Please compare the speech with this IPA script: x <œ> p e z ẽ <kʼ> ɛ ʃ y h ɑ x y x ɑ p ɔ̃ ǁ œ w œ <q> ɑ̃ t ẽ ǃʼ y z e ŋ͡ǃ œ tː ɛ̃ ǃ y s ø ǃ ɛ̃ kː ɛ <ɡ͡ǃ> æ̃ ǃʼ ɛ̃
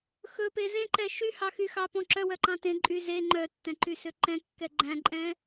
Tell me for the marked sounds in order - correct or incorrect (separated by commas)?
incorrect, incorrect, incorrect, correct